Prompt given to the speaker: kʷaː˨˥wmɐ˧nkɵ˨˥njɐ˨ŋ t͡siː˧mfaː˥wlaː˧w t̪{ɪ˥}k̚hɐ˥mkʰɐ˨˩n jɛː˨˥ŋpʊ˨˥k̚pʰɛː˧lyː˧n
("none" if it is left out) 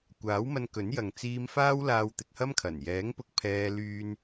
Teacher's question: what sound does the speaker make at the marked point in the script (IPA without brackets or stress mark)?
ɪ˧